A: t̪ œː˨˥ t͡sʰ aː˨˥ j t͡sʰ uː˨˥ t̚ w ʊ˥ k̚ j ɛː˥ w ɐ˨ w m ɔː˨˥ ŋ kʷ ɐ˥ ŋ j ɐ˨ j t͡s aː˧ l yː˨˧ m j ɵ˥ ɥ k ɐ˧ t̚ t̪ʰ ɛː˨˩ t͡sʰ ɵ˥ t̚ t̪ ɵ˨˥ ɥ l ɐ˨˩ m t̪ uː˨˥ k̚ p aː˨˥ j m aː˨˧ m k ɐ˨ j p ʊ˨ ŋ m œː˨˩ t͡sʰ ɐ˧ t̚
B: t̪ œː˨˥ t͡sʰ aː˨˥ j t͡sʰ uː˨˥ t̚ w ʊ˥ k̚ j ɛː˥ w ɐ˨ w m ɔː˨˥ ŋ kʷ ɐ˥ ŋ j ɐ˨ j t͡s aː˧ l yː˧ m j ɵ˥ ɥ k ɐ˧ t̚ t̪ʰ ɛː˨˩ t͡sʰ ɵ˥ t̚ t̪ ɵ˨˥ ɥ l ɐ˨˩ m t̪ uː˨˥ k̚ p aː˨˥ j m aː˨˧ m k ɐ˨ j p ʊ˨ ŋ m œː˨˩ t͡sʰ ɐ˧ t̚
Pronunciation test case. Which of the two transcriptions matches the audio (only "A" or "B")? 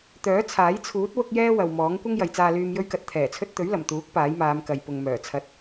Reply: B